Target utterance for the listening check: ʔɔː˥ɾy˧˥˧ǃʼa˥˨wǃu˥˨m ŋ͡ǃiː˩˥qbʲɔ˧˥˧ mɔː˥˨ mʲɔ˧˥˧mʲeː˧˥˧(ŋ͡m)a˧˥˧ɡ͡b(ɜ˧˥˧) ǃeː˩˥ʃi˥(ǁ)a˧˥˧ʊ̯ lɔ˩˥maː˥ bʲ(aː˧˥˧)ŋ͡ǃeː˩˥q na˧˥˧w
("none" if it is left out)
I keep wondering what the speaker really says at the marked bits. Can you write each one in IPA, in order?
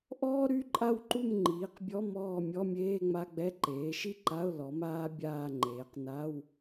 ŋ͡m, ɛ˧˥˧, ǃ, aː˥˨

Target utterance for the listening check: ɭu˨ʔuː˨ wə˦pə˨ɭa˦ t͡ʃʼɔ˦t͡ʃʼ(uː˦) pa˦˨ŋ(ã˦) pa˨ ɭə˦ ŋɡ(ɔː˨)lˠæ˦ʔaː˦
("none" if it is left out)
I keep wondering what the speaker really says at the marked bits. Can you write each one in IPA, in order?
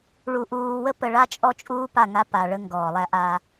uː˦, a˦, ɔː˨

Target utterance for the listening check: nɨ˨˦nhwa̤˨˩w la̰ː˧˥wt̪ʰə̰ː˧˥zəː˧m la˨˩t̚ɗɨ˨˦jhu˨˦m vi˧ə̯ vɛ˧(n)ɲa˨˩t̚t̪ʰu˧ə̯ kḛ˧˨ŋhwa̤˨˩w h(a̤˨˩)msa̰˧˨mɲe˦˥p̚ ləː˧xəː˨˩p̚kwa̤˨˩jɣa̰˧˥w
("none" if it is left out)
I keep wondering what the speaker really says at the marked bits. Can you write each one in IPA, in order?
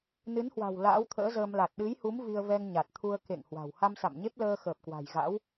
ŋ, a˧

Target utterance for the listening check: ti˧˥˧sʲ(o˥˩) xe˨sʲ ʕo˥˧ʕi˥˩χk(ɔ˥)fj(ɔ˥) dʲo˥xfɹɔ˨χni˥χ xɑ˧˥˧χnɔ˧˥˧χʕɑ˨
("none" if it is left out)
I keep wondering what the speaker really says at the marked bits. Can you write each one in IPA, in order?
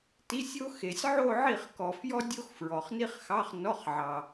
o˥, ɔ˨, ɔ˥

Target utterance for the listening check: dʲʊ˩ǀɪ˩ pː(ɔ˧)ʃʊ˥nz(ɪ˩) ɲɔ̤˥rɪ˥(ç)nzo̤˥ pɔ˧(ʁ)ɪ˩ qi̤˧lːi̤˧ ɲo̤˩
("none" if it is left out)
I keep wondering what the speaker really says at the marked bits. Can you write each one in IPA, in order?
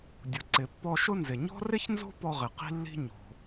ɔ˧, ɪ˩, ç, ʁ

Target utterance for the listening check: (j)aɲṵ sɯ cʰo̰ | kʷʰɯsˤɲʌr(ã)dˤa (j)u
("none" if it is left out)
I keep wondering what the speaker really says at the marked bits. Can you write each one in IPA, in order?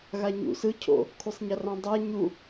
ɣ, ã, ɲ

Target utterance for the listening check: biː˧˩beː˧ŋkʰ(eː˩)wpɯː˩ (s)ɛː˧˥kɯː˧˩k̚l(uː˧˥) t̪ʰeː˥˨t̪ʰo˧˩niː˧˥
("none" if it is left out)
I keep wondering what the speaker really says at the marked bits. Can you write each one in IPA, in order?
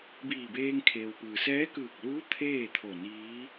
eː˩, s, uː˧˥

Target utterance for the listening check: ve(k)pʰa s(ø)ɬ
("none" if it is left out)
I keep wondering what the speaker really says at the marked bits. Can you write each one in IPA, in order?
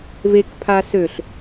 k, ø

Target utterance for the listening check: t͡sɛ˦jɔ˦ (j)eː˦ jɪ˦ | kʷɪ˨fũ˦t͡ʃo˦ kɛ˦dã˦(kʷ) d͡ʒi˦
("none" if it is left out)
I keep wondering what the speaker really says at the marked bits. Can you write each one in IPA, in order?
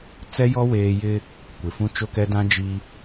w, none

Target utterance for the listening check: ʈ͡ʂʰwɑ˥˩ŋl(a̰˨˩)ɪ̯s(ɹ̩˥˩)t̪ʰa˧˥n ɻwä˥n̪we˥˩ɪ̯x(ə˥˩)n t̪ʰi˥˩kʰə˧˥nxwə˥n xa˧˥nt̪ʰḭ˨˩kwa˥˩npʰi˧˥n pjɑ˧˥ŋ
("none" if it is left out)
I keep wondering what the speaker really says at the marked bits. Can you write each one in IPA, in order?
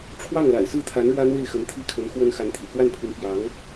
a̰˨˩, ɹ̩˥˩, ə˧˥

